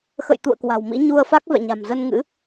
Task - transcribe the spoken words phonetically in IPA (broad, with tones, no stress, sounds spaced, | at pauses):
x ə̰˧˨ j t̪ ṵ˧˨ ə̯ k w a̤˨˩ w m ḭ˧˥ ɲ u˧ ə̯ f a˦˥ k̚ v ɛ̰˧˨ ɲ a̤˨˩ m z ə˧ n ŋ ɨ̰˧˥